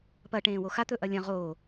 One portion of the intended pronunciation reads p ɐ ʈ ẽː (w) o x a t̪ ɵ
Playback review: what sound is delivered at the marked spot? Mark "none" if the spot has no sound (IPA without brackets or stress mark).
w